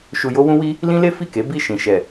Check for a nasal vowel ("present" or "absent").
present